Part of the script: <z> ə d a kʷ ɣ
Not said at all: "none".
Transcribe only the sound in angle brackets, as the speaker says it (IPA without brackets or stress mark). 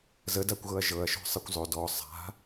z